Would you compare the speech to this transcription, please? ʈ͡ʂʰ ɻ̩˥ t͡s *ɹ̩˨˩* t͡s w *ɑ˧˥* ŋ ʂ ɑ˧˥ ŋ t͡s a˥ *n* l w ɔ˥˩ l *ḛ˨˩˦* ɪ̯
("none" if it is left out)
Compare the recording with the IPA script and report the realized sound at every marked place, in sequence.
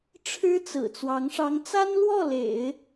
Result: ɹ̩˨˩, ɑ˧˥, n, ḛ˨˩˦

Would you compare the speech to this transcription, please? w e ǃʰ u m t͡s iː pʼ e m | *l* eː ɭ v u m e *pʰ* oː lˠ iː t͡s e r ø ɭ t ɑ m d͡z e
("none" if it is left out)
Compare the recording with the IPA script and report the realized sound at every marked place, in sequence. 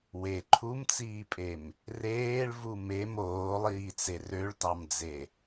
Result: r, m

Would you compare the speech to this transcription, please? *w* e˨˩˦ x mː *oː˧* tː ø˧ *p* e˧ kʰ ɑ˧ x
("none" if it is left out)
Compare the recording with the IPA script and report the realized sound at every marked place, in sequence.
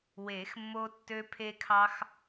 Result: w, o˧, pʰ

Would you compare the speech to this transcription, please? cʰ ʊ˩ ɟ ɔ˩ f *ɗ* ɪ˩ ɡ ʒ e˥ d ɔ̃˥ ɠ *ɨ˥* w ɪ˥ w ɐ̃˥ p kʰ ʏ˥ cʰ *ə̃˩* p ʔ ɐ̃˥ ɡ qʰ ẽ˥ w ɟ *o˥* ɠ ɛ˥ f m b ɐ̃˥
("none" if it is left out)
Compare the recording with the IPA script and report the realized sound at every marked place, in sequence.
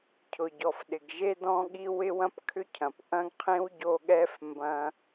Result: ɗ, i˥, ɐ̃˩, o˥

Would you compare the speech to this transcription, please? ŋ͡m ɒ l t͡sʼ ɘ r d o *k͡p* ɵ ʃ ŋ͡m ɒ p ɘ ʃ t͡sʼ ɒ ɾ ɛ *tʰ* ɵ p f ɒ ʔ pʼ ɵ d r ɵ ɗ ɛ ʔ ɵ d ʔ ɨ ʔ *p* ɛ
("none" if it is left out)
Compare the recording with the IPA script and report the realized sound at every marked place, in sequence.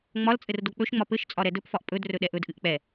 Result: k͡p, d, k͡p

